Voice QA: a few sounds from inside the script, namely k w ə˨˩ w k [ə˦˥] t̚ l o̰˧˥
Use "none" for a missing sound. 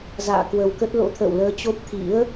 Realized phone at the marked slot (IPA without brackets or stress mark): ə˦˥